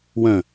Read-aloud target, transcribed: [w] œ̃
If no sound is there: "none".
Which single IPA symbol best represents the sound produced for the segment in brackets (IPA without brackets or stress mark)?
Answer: w